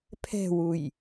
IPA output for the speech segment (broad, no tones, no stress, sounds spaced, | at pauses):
pʰ ɛ̤ w u j